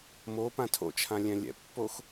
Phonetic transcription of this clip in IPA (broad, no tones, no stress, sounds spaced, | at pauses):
m o p ã tʰ o̰ t͡ʃʰ ã lʲ ɛ̃ lʲ ɛ̰ pː o x